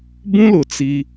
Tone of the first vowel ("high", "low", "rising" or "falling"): high